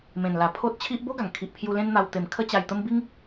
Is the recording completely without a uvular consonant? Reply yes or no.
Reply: yes